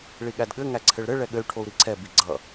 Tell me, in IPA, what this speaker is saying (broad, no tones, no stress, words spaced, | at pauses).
ɭiɠædɠɘ ŋæǀʰɘɭɾɘ ɭɛɠɘy̯ ʈʰou̯ɾiǀʰɛ biɡ͡ǀʌ